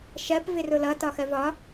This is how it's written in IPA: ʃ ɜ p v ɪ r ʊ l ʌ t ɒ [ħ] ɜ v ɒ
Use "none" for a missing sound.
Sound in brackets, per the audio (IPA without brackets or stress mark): x